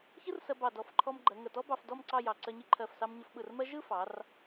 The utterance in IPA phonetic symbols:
çɯ˥rsɜ˧bɑ˧˩ dɔ˧˩fǃʰɔ˧mɡ͡ǃɜ˩˧ ŋə˧˩tɔ˥bɑ˧f dɔ˥˧mǀɑ˥˧jɑ˧˩ ǀɜ˧ɲi˧ǃʰɜ˧˩fsɑ˧m ɲə˧fɓɯ˧˩rmɜ˥ ʒɯ˥˧fɑ˩˧r

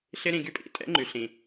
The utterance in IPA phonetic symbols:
ɬɪ˦ ɾĩ˧ɡy˦pʼḭ˨˦ tʼɛ̰˦ŋ͡ǃy˨ɬĩ˨

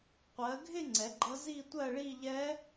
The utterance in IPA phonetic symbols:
qʷɜ˨˦ɡʱɪ˥˧ ŋ͡ǀɛ˨˦ɡ͡ǃʌ˦˥ zi˥˧tʷɜ˥˧ɭi˥˧ʎɛ˦˥

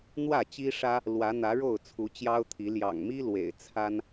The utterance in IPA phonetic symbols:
n̪wä˥˨t͡ɕi˦ʂä˦ | lwä˨˦n̪ä˨˦ɻo˥˨ʊ̯ t͡sʰu˨˦t͡ɕjɑ˦ʊ̯t̪ʰi˨˦ ljɑ̰˨˩ŋmi˦ lwḛ˨˩ɪ̯t͡sʰa˦n

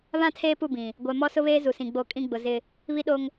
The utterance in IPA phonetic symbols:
βã˦tʰeː˦pu˦˨bĩ˨ | ɡʷɛ˨mɔ˦sʊ˦βeː˦ zu˨sĩ˨ɡ͡bo˦˨kʼĩ˦ ɡ͡bʊ˨ zɪ˦ | βi˦ɗo˦ŋ

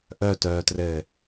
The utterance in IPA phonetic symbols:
ʔœtœːtrɘ

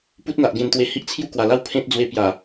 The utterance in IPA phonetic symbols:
pu˦t̚n̪a˨ʔ ɡẽ˧nt̪we˧ hi˦ʔt͡sʰju˦kwa˨˩la˥˧w pʰẽ˦t̚d͡zwe˧ pja˨˩

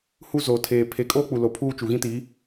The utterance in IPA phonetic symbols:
hu˦zoː˨tʰeː˨ pʰe˨kʼoː˦ k͡pu˨lo˨pʰuː˦ t͡ʃu˨ɣĩ˦ti˨˦

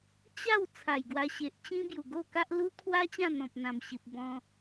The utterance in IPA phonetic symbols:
t͡ɕa˥˧w t͡sʰa˨˩jɡwa˧ɕe˨ʔt͡ɕĩ˦ bju˨˩ɡo˥˧ka˦ʔ lu˦kʰwa˦ t͡ɕã˥˧n̪ɔ̃˨p̚n̪ã˨˩mɕi˨p̚ bɔ̃˧

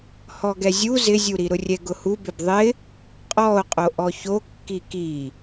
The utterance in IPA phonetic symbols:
hɔɡɛzʲu zɪzʲuɾi ɾʊrʲɛɡʊhu bɪbðˤɪ | qʼɔo̯qʼo ʔɔçokːi ki

